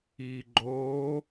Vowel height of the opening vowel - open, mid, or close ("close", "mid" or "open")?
close